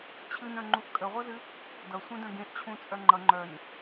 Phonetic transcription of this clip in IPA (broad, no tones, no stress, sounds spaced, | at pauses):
t͡ɕʰ ɨ n œ̃ ŋ͡ǃ u ʔ kʼ ə ʁʷ ʌ z ɨ | d ʌ sʷ ẽ d œ̃ ɡ ẽ ʔ t͡ɕʰ ũ t͡sʼ œ ŋ͡ǃ ʌ ŋ͡ǃ œ n